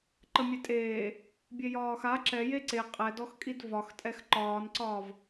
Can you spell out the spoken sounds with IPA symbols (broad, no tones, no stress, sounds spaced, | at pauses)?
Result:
ǃ ə mʲ e tʼ eː | bʲ e j ɒː x a ǁ ɛ j e ǀ e qʼ ɛ d ɔ x kʼ i d v ɒ x tʼ ɛ x ǃ ɒː n ǀ ɒː v